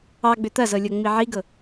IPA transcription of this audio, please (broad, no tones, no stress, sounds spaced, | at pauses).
ɑ ɡ͡b ʏ t̪ ɐ z ɤ lʲ ɤ ŋ͡m i ʕ i ɡ ɤ